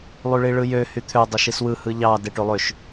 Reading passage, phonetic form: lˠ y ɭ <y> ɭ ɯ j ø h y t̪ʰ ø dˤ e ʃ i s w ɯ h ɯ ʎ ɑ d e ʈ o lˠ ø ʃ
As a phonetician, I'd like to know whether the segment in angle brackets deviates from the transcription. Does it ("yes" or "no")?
yes